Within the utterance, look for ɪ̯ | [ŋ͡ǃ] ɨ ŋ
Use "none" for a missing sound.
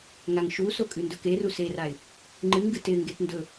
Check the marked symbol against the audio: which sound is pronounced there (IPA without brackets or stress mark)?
ŋ͡ǃ